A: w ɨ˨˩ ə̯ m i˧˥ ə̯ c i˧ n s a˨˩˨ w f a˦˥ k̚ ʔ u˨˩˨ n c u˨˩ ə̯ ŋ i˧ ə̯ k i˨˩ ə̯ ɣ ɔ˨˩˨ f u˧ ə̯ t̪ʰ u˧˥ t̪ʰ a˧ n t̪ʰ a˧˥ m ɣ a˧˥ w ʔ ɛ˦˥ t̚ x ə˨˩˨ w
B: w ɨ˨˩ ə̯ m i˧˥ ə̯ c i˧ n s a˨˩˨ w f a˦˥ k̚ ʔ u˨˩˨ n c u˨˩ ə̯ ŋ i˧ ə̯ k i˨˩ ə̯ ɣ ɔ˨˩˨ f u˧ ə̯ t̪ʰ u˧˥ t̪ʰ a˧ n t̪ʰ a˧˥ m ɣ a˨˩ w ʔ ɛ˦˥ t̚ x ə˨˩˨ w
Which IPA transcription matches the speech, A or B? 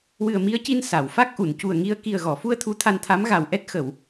B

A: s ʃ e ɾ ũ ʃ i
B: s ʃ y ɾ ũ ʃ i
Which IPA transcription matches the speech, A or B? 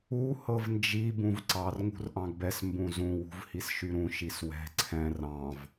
B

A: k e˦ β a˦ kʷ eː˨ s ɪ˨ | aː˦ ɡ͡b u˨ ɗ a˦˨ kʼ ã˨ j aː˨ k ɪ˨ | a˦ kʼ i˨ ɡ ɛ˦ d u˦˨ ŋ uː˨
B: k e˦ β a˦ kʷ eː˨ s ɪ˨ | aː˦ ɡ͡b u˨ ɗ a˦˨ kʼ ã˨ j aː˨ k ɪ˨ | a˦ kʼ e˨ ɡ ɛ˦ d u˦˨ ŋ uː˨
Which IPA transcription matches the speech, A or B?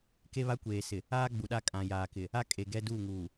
B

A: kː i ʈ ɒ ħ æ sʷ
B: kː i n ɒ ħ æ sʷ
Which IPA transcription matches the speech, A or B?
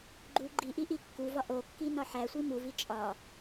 B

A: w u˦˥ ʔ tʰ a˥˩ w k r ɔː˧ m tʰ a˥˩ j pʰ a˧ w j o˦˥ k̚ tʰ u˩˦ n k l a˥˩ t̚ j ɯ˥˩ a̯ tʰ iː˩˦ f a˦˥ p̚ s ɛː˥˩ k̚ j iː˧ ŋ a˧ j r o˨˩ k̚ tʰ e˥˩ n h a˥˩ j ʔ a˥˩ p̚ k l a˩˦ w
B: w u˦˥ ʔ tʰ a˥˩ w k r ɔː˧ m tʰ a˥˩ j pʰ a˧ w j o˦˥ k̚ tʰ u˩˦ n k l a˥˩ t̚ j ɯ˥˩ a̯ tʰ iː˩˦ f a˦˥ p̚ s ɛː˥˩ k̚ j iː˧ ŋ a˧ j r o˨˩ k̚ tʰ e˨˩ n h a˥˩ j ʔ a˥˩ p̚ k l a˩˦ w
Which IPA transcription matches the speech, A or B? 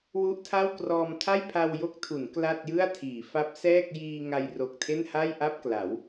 A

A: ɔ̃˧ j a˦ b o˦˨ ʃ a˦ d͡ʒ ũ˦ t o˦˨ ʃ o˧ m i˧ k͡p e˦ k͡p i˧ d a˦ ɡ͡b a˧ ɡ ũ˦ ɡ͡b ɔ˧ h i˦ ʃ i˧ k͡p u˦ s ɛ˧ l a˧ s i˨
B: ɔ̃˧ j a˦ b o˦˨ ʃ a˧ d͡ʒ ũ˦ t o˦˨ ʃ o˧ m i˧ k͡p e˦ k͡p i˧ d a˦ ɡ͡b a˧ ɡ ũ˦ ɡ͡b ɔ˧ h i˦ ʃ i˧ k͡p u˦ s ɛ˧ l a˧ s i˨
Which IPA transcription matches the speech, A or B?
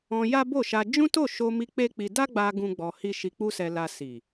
B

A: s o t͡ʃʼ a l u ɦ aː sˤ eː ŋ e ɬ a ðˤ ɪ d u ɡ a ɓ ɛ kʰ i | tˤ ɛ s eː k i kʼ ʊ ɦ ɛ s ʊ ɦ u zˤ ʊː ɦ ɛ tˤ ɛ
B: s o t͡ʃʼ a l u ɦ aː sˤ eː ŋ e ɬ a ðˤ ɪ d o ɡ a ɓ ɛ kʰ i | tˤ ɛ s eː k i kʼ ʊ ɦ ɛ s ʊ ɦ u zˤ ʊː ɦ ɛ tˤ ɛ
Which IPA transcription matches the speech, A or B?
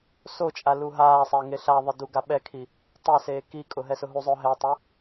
A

